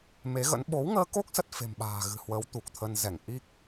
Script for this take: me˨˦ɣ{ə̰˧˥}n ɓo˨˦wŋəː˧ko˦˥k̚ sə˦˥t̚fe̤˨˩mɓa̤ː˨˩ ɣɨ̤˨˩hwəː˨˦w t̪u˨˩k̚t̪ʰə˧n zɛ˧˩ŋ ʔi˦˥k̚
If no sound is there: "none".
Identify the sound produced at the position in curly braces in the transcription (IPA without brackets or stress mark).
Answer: ə̰˧˥